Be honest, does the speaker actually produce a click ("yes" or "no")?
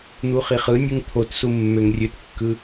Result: no